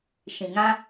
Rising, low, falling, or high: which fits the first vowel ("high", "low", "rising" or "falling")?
low